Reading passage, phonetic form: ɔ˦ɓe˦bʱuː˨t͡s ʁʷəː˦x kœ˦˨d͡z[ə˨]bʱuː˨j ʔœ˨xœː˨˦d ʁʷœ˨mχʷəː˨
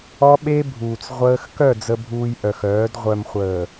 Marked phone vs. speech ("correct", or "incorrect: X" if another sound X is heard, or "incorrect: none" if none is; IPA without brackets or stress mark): correct